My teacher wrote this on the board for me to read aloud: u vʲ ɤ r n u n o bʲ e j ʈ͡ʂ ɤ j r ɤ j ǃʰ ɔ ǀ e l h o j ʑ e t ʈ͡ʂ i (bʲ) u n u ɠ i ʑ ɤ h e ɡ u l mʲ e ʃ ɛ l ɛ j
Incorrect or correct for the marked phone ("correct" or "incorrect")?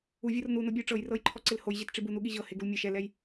incorrect